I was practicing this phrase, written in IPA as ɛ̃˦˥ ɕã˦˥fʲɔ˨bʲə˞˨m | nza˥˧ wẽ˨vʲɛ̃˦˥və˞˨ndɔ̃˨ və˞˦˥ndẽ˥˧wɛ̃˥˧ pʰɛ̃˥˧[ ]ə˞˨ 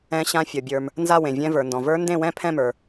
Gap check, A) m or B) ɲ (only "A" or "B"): A